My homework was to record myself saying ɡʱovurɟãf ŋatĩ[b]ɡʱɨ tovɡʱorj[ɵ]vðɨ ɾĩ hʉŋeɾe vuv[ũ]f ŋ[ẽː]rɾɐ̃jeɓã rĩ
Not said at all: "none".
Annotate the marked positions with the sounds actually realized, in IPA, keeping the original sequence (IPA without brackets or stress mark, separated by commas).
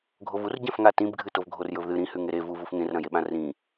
b, ɵ, u, ẽ